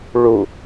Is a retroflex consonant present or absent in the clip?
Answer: present